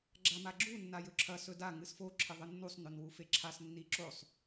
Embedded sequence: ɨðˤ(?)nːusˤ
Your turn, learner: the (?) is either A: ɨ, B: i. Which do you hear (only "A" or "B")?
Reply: A